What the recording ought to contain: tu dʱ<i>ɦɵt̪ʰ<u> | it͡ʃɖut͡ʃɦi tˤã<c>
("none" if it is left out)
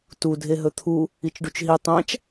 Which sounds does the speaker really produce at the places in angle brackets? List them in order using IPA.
e, u, t͡ʃ

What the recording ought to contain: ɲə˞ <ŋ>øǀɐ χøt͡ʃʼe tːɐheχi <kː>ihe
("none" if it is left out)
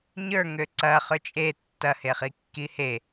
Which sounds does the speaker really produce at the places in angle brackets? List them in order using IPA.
ŋ, kː

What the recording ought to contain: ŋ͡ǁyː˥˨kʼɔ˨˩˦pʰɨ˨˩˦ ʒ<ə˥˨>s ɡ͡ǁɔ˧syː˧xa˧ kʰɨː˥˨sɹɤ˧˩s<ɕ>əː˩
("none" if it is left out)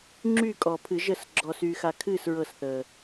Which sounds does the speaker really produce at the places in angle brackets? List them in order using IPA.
ə˥˨, θ

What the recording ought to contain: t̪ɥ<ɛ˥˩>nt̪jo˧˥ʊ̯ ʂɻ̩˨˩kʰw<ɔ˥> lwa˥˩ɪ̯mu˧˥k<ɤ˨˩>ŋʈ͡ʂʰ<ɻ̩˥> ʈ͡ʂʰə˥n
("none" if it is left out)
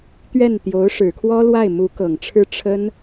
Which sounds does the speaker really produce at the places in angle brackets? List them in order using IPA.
ɛ˥˩, ɔ˥, ɤ˨˩, ɻ̩˥

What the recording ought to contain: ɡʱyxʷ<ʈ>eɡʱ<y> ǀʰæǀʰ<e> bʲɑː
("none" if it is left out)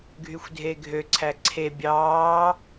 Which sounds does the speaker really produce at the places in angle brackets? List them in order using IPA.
dʱ, ø, e

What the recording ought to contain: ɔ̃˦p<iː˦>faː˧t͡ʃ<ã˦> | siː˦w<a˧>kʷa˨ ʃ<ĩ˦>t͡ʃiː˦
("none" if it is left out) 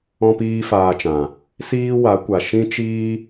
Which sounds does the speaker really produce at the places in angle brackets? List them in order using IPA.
iː˦, ã˨, a˨˦, ĩ˦

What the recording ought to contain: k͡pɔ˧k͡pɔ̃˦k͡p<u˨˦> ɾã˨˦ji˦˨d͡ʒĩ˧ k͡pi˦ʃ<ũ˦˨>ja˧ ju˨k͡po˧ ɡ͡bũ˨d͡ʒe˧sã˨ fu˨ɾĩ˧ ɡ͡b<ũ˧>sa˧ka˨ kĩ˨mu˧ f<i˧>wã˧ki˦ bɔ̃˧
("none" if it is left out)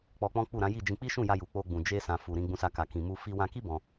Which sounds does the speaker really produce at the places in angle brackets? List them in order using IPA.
u˦˨, ũ˦˨, ũ˧, i˧

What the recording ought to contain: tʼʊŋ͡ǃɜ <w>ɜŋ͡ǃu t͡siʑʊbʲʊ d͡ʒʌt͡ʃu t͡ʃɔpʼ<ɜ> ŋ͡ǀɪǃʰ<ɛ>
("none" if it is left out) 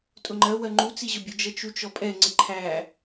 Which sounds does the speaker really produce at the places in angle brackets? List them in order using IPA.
w, ɛ, æ

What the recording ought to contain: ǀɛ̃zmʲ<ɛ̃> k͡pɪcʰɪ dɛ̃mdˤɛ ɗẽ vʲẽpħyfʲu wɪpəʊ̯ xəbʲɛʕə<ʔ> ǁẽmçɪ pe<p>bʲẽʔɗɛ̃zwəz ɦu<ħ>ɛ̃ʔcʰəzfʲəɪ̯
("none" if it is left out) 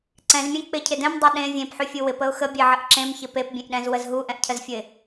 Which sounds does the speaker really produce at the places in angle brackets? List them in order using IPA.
ɛ̃, ʔ, p, ʔ

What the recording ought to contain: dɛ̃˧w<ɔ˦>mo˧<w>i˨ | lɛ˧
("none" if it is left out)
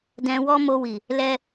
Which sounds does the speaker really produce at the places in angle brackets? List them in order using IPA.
ɔ˦, w

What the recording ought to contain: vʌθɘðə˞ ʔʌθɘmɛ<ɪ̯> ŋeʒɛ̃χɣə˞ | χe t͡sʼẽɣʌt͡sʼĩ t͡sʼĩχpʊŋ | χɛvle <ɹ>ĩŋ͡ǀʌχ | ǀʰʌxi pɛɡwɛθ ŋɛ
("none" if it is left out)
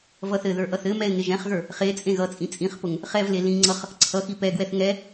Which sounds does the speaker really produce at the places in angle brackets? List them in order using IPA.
ɪ̯, l

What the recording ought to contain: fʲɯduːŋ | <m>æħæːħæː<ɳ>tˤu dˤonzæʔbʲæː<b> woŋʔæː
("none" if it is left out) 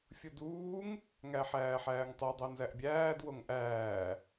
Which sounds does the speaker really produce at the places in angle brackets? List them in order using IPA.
ŋ, ŋ, d

